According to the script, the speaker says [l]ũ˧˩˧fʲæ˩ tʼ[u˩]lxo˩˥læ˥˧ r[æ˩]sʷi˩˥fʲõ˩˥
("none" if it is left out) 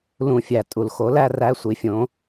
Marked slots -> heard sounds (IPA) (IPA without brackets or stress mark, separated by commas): l, u˩, æ˧˥˧